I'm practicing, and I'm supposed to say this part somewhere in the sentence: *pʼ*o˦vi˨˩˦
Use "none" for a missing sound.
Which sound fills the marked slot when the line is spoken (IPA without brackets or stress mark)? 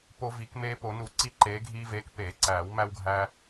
p